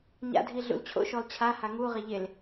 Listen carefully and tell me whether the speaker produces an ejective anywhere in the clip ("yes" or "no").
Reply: no